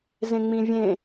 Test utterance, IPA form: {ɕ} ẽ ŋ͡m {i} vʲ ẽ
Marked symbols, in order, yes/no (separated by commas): no, no